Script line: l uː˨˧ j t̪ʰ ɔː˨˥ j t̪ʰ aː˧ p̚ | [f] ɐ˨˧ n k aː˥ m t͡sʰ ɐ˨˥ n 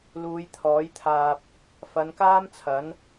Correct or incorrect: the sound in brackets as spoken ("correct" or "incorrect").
correct